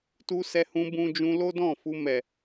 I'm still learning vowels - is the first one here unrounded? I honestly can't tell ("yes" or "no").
no